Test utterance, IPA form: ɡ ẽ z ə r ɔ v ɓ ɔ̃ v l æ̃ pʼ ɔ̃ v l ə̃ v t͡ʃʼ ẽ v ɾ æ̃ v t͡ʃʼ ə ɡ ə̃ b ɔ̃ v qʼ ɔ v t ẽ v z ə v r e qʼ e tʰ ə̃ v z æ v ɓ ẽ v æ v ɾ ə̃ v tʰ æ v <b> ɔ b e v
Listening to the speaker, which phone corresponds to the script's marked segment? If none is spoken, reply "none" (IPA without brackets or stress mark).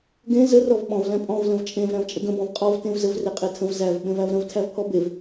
pʰ